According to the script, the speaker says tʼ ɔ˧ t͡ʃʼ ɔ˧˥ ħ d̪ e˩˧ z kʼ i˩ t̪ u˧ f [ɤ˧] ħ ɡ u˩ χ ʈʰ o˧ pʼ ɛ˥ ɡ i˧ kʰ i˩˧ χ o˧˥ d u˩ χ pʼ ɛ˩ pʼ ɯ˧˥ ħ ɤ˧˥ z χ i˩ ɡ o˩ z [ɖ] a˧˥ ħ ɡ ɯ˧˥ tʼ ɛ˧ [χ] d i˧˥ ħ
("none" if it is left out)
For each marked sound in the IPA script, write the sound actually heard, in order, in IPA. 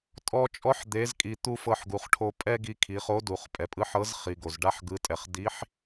ɤ˧, ɖ, χ

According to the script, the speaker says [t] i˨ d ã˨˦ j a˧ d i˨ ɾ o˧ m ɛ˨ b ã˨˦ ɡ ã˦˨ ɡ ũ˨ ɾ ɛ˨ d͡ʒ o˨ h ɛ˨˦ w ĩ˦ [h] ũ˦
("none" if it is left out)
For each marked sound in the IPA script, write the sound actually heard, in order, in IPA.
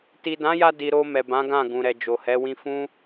t, f

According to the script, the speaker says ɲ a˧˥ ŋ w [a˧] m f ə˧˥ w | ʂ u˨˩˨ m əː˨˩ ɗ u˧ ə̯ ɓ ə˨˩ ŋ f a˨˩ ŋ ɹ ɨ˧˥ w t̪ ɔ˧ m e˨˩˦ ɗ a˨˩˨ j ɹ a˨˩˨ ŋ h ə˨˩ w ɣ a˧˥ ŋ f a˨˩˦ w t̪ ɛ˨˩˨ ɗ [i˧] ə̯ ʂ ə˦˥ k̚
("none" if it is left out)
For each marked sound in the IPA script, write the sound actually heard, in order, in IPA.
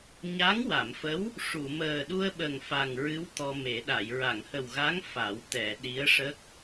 a˨˩˨, i˧˥

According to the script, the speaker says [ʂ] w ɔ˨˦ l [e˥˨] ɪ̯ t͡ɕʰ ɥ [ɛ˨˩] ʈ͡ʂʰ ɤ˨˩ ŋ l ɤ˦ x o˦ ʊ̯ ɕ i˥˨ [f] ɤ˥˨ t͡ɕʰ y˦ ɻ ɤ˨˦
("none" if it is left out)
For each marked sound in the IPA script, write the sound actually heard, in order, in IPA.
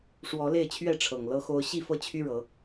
ʂ, e˥˨, ɛ˥˨, f

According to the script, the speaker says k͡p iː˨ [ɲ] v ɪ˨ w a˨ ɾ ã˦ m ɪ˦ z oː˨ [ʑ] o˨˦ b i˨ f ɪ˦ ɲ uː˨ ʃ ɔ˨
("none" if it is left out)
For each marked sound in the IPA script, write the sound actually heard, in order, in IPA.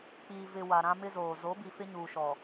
none, z

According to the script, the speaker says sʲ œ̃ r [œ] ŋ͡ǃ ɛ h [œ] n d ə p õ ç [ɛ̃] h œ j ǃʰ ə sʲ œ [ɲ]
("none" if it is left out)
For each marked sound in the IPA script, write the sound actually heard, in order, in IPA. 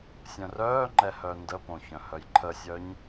œː, œ, œ̃, ɲ

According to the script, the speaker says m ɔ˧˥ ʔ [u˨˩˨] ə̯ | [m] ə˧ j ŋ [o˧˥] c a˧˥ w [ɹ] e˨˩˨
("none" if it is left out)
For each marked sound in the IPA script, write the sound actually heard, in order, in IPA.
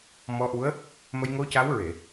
u˧˥, m, o˧˥, ɹ

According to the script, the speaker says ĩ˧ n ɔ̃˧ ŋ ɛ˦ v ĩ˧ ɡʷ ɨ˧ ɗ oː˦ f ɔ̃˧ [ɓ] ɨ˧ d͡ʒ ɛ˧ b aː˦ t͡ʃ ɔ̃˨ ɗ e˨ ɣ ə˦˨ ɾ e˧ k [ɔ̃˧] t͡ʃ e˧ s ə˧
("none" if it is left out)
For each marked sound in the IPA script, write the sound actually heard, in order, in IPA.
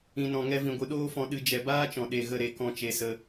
ɗ, ɔ̃˦˨

